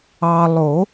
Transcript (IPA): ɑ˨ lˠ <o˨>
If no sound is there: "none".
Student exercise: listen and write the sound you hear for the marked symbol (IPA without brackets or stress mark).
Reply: o˨˩˦